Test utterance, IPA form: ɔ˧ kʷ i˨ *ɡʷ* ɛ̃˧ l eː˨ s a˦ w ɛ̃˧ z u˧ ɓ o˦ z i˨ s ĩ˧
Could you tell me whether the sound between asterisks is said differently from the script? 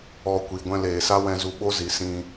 no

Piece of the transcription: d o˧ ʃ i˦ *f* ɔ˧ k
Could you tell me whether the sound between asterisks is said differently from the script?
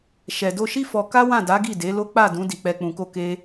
no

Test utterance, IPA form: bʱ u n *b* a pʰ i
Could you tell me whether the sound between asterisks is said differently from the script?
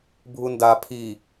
yes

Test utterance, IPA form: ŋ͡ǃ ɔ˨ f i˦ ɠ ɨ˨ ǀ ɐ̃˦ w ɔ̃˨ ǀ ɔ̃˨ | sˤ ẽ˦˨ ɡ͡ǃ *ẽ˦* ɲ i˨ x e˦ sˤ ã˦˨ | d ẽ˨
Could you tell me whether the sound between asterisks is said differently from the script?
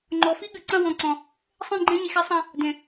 no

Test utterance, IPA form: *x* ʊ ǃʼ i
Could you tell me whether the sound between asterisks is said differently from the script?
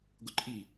yes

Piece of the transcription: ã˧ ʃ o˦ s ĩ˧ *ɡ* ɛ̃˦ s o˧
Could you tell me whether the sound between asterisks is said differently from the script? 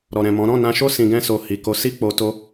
no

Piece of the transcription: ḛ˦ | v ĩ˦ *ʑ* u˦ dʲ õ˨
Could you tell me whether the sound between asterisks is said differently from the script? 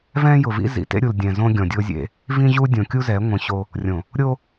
no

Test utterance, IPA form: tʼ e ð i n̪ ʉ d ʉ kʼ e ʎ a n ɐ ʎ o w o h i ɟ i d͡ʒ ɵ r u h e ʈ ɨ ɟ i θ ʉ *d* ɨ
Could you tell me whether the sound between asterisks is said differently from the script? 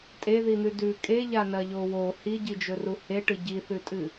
yes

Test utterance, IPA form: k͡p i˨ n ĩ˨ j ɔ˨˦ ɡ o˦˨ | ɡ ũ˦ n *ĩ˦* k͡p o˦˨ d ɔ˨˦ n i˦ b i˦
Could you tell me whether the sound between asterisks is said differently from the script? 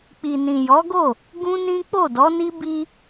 no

